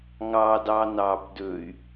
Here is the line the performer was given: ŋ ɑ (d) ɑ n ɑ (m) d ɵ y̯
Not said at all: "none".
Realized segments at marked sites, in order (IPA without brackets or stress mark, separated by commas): d, b